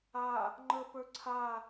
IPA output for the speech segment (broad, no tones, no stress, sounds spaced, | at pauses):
a | ŋ͡ǃ ə p ə˞ ǀʰ a